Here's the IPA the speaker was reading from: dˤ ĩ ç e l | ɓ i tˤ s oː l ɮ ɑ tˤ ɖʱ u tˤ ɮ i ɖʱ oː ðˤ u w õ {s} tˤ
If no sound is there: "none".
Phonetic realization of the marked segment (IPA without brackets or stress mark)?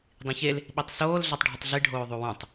none